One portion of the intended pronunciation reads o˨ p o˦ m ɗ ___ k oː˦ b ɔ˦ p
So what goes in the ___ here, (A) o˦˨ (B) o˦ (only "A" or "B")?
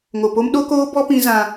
B